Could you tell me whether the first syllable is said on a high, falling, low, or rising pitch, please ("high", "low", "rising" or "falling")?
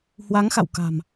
rising